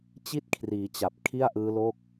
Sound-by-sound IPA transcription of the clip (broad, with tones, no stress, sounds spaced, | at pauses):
t͡ɕ i˥˩ t̚ kʰ r iː˩˦ t͡ɕ a˨˩ p̚ kʰ i˥˩ a̯ ʔ ɯː˦˥ l o˥˩ k̚